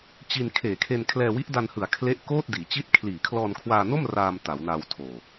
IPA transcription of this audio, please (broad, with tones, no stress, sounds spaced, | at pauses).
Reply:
t͡ɕ i˧ n kʰ eː˨˩ kʰ e˧ n kʰ l ɛː˧ w i˦˥ ʔ d a˧ n h ɯ˩˦ a̯ kʰ l e˦˥ ʔ k oː˥˩ t̚ d iː˩˦ t͡ɕ i˦˥ t̚ kʰ l iː˨˩ kʰ l ɔː˧ n kʰ w aː˧ n o˥˩ m r aː˧ m t a˩˦ w n a˧ w tʰ oː˨˩